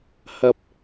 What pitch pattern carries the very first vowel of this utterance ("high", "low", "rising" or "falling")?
low